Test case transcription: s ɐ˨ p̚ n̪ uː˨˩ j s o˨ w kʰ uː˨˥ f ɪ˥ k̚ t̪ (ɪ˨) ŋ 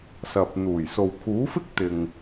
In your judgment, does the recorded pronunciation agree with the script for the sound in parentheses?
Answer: yes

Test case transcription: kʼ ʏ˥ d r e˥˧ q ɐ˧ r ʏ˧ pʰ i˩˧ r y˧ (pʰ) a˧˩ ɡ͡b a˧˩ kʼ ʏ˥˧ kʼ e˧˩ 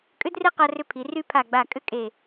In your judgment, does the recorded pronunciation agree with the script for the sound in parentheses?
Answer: yes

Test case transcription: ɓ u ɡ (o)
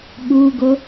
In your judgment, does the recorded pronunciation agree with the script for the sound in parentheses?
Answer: yes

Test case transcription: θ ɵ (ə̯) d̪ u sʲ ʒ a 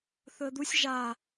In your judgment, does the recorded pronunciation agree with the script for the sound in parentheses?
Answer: yes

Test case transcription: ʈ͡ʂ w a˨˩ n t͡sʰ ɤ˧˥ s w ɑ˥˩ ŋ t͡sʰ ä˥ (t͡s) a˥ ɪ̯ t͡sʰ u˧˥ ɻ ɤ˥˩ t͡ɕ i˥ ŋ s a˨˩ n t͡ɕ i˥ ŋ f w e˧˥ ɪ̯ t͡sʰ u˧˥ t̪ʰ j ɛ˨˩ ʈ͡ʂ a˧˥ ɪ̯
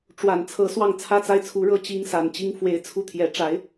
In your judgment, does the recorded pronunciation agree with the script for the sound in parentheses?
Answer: yes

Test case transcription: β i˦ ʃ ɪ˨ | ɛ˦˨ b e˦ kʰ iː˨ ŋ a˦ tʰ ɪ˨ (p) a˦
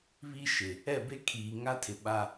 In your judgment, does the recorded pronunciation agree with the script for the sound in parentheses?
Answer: no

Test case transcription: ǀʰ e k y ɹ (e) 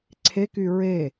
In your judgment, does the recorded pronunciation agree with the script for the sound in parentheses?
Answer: yes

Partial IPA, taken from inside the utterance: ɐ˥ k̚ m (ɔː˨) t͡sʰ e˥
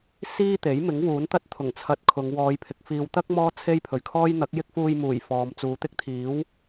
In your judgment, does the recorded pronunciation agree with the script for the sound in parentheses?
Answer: no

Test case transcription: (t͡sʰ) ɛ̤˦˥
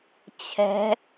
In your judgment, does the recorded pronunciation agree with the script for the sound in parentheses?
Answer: no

